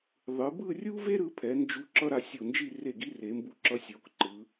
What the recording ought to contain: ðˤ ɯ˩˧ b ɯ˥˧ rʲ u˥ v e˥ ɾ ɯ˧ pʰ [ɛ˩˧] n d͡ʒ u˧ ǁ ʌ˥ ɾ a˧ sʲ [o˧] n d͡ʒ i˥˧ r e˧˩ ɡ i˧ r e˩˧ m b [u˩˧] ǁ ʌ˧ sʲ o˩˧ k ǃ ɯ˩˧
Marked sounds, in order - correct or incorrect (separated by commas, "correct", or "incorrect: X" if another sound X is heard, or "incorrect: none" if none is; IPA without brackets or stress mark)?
correct, incorrect: o˧˩, incorrect: u˧